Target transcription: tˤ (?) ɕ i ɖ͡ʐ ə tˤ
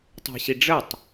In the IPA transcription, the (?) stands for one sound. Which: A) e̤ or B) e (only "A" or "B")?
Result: A